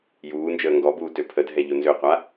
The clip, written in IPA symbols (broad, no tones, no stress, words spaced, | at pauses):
juːnd͡ʒəː ŋɡɔbuː tøpʰədʱɛ ʎonzøqʷa